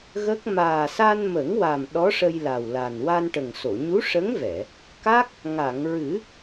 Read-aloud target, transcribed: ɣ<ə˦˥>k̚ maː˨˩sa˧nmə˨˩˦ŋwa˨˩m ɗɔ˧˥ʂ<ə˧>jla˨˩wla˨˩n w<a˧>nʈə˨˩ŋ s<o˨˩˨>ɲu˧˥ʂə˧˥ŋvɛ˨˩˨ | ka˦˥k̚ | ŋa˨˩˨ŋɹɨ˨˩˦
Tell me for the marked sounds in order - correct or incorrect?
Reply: correct, correct, correct, correct

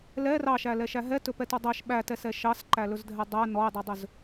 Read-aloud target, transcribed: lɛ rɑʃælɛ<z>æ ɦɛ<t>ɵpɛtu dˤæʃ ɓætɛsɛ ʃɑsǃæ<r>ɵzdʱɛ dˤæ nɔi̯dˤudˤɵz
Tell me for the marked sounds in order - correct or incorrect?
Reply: incorrect, correct, incorrect

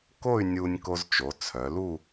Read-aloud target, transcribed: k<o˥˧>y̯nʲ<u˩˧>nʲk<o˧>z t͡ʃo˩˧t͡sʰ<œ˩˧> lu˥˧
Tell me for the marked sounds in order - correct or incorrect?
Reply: correct, incorrect, correct, correct

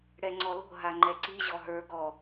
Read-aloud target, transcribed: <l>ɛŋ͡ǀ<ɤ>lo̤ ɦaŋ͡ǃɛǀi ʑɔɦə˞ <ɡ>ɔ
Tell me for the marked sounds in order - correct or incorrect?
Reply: incorrect, incorrect, correct

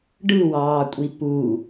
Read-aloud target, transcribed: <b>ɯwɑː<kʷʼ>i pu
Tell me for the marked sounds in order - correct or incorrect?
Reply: incorrect, correct

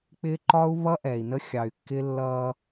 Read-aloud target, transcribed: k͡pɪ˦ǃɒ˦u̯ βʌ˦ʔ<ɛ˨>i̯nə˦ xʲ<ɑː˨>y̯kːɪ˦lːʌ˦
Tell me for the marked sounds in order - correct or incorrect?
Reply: correct, incorrect

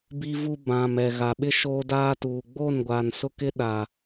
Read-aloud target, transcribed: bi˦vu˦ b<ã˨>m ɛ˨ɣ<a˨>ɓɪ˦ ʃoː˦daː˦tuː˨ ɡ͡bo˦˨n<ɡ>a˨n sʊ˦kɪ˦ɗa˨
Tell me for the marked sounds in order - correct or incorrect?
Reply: correct, correct, incorrect

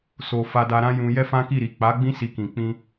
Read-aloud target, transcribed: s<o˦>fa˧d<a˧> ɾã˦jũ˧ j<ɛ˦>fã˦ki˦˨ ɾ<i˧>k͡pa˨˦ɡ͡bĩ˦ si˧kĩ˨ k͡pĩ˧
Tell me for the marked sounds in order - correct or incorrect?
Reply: incorrect, correct, correct, incorrect

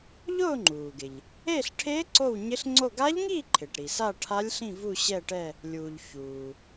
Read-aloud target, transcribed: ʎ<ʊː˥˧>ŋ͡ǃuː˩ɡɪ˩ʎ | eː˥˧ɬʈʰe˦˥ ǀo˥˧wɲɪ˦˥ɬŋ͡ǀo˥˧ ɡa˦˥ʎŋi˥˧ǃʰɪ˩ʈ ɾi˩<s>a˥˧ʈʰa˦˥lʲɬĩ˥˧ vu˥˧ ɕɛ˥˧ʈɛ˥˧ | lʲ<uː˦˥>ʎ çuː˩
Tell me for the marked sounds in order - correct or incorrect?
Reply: correct, correct, incorrect

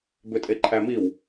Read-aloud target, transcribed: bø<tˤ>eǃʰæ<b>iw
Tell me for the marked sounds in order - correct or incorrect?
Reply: incorrect, incorrect

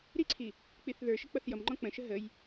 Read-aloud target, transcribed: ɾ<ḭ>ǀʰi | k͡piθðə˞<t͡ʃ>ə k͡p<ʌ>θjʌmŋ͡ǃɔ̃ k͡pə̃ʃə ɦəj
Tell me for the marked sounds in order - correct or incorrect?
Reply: incorrect, incorrect, correct

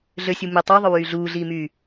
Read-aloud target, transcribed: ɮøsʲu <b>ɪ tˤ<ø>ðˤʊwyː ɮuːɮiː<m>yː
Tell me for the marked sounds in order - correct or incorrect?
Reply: incorrect, correct, correct

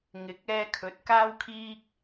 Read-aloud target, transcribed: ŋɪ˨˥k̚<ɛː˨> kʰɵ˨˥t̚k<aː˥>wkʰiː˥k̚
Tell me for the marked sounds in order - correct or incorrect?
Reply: incorrect, correct

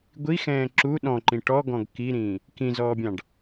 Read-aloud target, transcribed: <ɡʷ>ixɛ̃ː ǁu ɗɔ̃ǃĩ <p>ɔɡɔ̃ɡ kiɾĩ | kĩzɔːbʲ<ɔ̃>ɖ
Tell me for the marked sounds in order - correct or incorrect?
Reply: correct, incorrect, incorrect

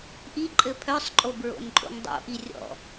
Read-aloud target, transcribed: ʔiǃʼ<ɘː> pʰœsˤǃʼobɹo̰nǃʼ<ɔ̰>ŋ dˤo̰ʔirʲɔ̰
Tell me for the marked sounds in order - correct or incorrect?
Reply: incorrect, incorrect

